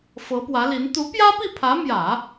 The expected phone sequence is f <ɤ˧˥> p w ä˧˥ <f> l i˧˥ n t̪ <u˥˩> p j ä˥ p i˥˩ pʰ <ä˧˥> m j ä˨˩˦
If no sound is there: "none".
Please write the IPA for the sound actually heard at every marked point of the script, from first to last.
ɤ˧˥, none, u˧˥, ä˧˥

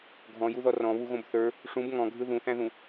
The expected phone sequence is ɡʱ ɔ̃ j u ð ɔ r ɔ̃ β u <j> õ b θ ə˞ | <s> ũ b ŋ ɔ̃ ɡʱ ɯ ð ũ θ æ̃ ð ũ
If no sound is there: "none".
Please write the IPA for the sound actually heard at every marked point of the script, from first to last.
ɣ, ʂ

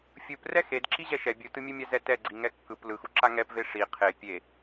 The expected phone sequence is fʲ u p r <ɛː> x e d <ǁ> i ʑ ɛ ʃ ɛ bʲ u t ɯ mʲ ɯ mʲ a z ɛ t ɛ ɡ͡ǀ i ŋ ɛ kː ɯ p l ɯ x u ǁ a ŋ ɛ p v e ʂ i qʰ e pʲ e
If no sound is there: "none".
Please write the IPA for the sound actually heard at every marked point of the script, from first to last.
ɛ, ǁ

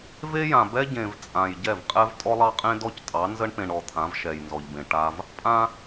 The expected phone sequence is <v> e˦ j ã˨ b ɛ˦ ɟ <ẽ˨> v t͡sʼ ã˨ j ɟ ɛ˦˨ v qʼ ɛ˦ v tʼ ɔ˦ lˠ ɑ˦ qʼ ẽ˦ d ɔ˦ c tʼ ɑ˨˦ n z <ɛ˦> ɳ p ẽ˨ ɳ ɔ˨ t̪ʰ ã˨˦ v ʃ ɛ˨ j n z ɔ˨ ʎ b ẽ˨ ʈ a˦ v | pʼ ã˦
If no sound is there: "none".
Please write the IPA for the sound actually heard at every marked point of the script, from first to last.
v, ẽ˨, ə˦

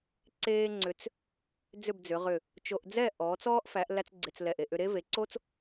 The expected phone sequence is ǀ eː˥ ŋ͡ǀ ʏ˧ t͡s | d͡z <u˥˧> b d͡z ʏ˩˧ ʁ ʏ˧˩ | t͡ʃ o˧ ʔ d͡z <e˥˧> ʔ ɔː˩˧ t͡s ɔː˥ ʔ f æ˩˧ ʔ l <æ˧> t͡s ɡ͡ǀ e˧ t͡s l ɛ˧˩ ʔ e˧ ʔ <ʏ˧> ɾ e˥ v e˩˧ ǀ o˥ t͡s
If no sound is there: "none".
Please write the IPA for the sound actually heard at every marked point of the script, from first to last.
ʏ˥˧, ɛ˥˧, æ˥, ʏ˧

